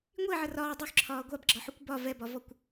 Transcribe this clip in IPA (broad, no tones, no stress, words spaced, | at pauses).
ŋʷiʕə rɒː dˤʉxǁʰɒː ɡʷabɡ͡ǁɒħukʷ bɒ vɛbɒvɔkʷ